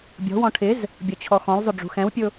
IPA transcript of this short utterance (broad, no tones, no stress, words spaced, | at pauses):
bʲɔ̤wɔ̃ ʈʰɪz | bʲɔt͡ɕʰɔxɔ̃lzˤʊ ɖ͡ʐṳxɛ̃wpʲʊ